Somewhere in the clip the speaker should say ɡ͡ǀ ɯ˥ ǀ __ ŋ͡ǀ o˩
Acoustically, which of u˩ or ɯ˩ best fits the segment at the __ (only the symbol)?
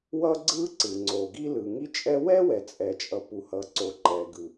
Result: ɯ˩